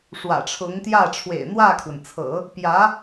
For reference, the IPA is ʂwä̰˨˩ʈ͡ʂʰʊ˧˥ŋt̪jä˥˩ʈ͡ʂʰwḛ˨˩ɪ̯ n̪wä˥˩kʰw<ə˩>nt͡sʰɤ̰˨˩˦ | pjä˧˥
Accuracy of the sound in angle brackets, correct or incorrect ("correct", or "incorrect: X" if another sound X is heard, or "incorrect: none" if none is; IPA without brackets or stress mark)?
correct